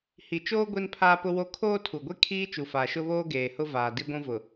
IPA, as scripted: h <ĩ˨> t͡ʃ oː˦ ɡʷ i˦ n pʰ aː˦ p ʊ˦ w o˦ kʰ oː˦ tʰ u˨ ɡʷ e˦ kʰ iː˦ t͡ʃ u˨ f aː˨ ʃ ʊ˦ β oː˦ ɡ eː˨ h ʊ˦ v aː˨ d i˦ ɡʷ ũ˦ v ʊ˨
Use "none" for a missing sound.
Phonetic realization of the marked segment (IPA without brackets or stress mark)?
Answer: i˨